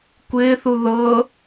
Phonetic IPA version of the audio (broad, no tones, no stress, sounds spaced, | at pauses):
kʷ ɪː θ u ð ɤ